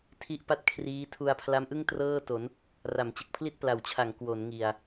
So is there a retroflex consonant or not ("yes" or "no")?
no